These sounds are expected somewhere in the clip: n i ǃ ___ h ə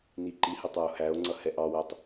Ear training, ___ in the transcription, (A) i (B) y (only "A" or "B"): A